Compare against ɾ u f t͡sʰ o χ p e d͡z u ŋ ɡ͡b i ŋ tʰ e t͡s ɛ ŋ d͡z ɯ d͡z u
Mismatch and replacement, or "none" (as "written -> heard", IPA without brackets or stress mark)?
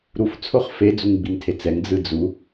p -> f